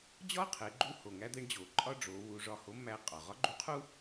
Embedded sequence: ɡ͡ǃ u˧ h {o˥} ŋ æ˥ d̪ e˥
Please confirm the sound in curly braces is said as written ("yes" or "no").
no